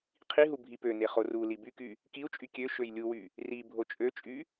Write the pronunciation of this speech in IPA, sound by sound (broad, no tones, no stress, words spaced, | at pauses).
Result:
qʰiɦu bʱipøne χoruli byky | kiu̯t͡ʃʼy kʲø ʃøjlʲuwy | ri bʱot͡ʃʼøt͡ʃʼy